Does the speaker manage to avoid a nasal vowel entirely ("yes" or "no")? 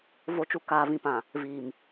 no